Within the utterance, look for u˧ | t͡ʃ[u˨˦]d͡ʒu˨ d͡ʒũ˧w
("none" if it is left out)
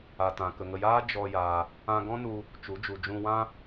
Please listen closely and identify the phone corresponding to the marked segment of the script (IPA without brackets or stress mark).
u˨˦